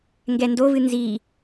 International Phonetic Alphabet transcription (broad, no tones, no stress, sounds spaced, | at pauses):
ŋ ɡ ɛ n d o v ɨ n z i